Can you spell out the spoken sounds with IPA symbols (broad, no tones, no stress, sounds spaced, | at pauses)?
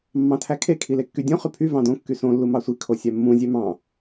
mː ɑ̃ tʰ æ kʰ e kʰ i l e kː y dʲ õ χ y pʰ y v ɑ̃ d õ kː y s õ lː u m ɑ sʷ i kʰ o sʲ æ mː ũ zʲ ø m ɑ̃